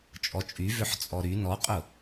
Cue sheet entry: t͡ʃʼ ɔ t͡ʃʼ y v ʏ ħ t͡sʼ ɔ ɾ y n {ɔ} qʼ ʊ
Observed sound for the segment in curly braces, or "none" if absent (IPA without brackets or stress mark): ɔ